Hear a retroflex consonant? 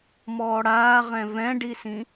yes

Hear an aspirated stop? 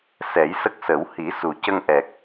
no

